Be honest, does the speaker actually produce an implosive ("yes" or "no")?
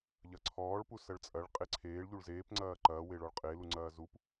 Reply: no